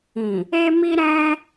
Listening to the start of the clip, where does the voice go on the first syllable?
low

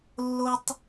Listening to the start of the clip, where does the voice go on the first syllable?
high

